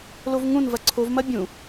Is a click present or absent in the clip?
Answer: present